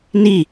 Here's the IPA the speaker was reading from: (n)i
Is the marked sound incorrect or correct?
correct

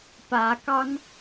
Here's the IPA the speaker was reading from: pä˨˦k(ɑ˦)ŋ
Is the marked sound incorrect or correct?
correct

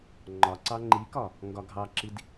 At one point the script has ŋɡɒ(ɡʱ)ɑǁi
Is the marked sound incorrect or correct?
correct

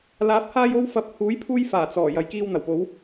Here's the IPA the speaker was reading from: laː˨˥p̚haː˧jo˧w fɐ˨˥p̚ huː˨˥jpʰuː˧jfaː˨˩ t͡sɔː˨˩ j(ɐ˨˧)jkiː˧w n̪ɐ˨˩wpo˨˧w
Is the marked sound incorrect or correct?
correct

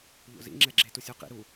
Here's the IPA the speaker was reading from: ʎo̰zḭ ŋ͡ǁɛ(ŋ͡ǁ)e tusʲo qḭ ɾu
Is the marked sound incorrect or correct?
incorrect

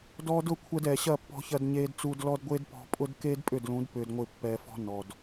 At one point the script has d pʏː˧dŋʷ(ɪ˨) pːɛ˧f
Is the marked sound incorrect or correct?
incorrect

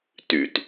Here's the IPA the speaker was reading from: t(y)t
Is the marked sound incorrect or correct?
correct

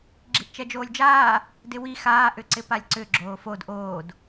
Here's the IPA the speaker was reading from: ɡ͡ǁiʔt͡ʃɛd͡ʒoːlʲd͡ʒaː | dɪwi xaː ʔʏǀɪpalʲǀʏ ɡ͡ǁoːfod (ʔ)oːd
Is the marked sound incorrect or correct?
correct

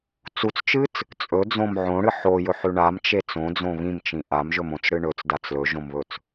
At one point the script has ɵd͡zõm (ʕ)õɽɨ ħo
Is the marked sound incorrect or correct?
correct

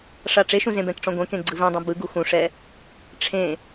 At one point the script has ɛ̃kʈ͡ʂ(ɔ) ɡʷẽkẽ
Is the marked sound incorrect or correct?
incorrect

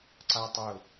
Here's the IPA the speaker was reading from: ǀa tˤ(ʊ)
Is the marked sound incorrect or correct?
correct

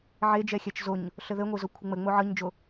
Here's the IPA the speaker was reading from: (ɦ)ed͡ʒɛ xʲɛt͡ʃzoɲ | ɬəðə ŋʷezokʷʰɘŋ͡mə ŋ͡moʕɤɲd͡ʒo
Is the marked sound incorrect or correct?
incorrect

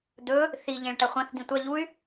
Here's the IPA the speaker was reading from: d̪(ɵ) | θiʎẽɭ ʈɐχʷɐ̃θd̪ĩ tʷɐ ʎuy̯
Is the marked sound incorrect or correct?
correct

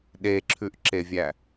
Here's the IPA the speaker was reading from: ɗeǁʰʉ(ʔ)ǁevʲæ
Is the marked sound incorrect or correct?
correct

